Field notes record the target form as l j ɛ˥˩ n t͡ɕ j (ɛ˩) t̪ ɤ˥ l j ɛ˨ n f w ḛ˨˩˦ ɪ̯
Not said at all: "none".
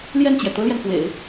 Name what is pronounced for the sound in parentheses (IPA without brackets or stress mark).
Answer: ɛ˩